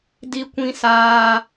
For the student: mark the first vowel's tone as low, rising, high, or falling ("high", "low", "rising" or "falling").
high